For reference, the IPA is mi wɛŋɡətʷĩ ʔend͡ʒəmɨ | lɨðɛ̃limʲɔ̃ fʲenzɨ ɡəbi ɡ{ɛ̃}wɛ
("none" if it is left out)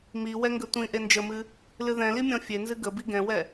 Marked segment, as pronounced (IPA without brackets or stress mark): ɛ̃